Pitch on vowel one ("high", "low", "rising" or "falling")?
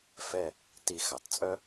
falling